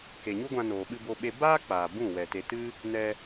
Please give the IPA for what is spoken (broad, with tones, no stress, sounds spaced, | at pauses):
k e˨ ɲ u˦ ɡʷ ã˧ n oː˨ ɓ ɨ˧ b o˧ ɓ e˧ b aː˦ k͡p aː˨ b ũ˦˨ w ɛ˨ t e˨ t ɨ˦ | n ɛ˧